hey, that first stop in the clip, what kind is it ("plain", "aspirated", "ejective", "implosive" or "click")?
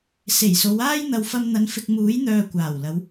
plain